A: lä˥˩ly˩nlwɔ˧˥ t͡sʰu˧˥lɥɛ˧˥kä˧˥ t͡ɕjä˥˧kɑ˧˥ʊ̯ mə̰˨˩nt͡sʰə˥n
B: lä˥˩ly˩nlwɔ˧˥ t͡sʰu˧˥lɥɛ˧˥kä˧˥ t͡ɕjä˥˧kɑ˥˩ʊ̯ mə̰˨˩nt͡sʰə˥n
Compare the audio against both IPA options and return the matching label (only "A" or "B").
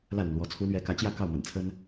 B